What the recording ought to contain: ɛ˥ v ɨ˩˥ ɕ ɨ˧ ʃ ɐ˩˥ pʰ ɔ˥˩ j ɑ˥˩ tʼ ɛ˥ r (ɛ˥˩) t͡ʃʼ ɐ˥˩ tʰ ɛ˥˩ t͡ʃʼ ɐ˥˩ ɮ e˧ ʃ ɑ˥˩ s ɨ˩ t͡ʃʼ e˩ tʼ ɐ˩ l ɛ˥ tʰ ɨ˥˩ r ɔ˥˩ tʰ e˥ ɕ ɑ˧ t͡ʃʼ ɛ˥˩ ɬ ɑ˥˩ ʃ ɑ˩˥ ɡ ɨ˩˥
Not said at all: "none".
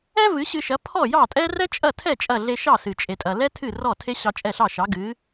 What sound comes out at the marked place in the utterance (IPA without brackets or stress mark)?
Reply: ɛ˥